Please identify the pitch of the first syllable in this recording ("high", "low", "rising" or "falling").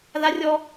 high